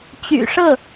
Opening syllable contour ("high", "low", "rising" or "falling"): low